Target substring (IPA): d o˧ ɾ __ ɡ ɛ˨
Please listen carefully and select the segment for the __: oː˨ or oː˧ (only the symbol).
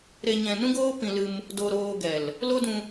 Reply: oː˧